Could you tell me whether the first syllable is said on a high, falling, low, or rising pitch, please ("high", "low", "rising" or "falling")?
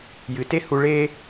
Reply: low